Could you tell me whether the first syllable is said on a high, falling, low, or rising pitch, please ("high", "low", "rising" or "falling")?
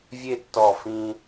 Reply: falling